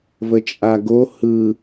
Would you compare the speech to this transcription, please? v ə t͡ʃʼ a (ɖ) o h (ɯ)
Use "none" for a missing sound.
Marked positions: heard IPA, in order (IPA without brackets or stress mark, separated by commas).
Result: ɡ, ɯ